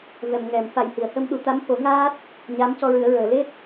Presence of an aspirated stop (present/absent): absent